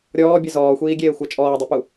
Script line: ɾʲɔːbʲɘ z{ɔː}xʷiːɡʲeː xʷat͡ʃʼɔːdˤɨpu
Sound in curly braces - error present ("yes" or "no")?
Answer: no